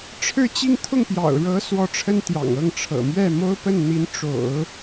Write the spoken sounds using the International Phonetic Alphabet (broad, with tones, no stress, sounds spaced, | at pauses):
ʈ͡ʂʰ ɻ̩˥˧ t͡ɕ i˥˧ ŋ t̪ʰ ʊ˥˩ ŋ p j ɑ̰˨˩ ʊ̯ ɻ ɤ˧˥ s w ɔ˧˥ ʈ͡ʂʰ ə˥ n t̪ j ɑ̰˨˩ ŋ ɤ˥˩ ŋ ʈ͡ʂʰ ɤ̰˨˩ m ɥ ɛ˥˩ m o˥ ʊ̯ p ə˥˩ n n̪ i˧˥ n ʈ͡ʂ o̰˨˩˦ ʊ̯